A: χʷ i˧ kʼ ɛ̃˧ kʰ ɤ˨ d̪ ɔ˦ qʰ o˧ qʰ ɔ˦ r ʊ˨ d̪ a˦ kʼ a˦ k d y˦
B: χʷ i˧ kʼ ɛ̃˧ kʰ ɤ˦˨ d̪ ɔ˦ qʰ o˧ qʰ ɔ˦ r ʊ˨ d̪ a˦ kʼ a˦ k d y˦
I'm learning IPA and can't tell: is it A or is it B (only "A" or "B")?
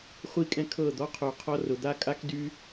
B